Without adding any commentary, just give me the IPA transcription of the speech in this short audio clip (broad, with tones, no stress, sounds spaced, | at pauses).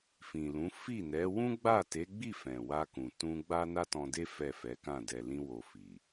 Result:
f ĩ˨ l ũ˨˦ f i˦˨ n ɛ˨˦ w ũ˦ ɡ͡b a˦˨ t e˨˦ ɡ͡b i˦˨ f ɛ̃˨ w a˧ k ũ˨ t ũ˧ ɡ͡b a˦ n a˦ t ɔ̃˧ d e˦ f ɛ˦˨ f ɛ˨˦ k ã˦˨ d ɛ˨ l ĩ˧ w o˨ f i˨